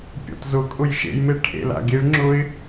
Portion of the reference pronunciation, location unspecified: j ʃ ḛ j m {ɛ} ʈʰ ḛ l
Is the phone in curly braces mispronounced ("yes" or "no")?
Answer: yes